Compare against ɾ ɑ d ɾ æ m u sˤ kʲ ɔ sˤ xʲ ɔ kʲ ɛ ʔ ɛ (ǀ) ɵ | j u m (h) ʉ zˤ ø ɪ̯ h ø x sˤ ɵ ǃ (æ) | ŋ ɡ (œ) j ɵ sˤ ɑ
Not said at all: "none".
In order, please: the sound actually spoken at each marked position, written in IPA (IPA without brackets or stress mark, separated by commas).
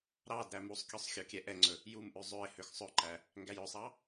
ŋ͡ǀ, ʔ, æ, æ